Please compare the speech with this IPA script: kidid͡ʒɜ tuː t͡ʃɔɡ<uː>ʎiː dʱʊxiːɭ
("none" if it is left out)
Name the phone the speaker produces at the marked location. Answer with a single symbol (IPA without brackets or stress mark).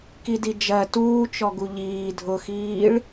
u